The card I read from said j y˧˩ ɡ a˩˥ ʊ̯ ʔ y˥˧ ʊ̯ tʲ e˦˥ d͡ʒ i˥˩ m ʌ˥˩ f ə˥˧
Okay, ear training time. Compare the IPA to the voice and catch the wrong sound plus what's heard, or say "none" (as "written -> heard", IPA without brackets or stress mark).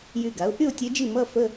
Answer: none